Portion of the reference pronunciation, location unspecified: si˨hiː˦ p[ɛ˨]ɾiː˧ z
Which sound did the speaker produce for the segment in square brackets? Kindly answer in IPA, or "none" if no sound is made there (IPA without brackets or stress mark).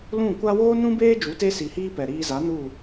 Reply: ɛ˨